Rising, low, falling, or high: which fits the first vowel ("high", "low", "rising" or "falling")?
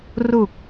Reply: low